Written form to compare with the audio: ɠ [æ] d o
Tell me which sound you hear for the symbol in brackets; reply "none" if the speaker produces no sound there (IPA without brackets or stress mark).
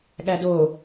æ